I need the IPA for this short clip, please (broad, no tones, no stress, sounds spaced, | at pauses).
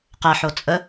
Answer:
q ɛ ħ o t͡sʼ ə